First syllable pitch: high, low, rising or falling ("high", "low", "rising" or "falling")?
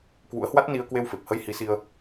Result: rising